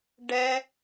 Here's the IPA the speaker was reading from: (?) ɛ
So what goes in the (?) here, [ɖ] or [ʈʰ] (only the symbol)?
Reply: ɖ